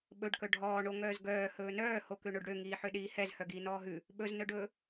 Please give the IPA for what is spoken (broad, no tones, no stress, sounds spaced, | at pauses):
ɓ ɵ ɖ k œ ɖʱ ɔː ɳ o ŋ œː z ɡ œː h ɵː n œː h o k ø ɳ o ɖ ɽ ø ŋ iː ħ ø ɗ iː h ɛ z h œ ɡ iː n ɔː ɦ ʉ | ɓ ɵ z n œ ɖ ɵː